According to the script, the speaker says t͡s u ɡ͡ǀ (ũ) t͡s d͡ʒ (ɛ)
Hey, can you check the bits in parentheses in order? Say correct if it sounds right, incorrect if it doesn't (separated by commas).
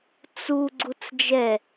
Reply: incorrect, correct